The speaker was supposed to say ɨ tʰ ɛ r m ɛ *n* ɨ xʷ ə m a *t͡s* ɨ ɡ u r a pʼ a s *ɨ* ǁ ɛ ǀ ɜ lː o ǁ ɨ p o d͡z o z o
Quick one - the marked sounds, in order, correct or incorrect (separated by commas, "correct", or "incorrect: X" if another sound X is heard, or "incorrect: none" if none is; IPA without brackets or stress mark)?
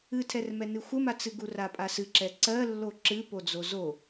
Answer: correct, correct, correct